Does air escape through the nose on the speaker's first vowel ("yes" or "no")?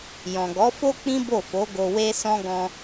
yes